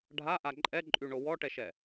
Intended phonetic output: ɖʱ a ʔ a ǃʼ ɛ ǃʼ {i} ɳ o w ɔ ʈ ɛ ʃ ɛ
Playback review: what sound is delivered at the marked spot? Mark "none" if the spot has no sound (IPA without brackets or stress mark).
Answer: y